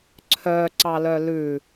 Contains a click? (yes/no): yes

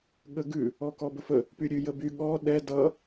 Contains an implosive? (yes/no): yes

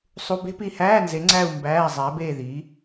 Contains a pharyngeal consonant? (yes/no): no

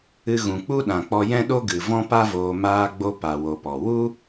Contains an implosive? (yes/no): yes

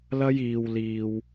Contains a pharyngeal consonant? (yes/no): no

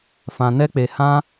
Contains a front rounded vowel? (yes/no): no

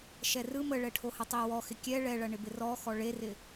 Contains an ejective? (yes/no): no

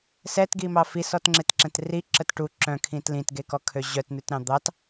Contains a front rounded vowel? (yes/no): yes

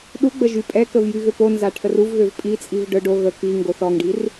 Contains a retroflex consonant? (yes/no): yes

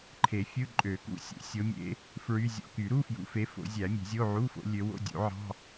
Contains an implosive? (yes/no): no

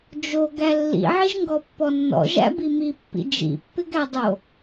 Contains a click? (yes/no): no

